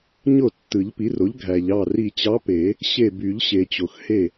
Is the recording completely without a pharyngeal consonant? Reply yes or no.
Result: yes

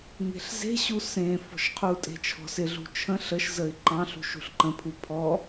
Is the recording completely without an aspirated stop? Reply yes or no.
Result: no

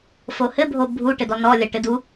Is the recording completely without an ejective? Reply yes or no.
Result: yes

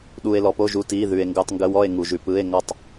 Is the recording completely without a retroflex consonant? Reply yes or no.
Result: yes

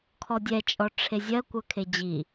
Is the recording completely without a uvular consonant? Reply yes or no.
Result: yes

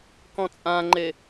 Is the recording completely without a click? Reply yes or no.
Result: no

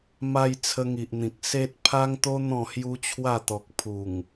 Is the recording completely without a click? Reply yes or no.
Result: yes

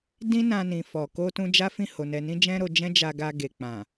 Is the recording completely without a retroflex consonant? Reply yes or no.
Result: yes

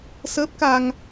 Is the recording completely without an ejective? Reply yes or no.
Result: yes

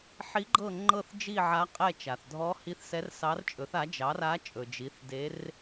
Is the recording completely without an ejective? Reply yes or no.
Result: no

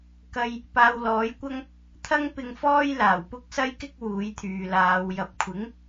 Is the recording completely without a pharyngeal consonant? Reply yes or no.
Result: yes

